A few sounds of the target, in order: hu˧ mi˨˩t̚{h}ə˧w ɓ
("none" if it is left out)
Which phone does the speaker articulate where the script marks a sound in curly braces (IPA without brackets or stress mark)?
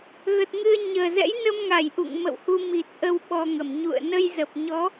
ʔ